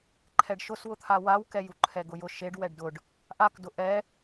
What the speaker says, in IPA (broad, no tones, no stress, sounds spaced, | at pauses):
ǃʰ ɛ ɖ ʃ ʊ s w ʊ t̪ʰ a w a w k ɛ j u ǃʰ ɛ ɡ ʊ j ʊ ʃ e ɖ w ɛ ɖ d ʊ ɖ | ʔ a k d ʊ ʔ ɛ